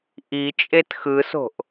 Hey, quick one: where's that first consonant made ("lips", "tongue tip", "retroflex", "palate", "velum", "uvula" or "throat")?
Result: throat